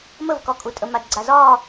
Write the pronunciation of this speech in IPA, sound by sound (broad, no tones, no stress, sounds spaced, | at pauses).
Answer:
m ə v k ɒ kʼ u tʼ ə m a d ɡ͡ǀ a z ɒː